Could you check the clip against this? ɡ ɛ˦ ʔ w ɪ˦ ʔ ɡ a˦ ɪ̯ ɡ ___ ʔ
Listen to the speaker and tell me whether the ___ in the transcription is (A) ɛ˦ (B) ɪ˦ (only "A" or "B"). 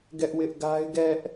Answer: A